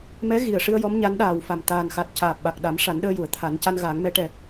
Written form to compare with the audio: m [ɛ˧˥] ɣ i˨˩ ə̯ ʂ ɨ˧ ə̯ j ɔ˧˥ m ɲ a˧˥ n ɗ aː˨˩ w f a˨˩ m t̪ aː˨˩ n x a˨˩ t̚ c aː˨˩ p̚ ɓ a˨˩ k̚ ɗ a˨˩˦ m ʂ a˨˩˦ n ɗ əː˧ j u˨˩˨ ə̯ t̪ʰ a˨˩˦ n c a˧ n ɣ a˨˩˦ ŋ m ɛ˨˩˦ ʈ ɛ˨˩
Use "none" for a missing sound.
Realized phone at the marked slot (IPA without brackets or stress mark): ɛ˧˥